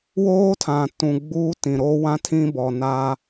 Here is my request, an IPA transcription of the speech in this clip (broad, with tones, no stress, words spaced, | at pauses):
woː˦tʰã˨tũ˨ ɡ͡buː˦tĩ˨ ɾoː˦wã˦tʰĩ˦ bɔ˨na˦